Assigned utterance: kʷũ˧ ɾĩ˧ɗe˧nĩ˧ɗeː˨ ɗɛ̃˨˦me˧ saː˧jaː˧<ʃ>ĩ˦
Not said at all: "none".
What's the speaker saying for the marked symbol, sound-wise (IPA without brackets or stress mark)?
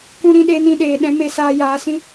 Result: s